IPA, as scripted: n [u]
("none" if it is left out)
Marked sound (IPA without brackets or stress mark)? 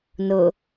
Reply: ʊ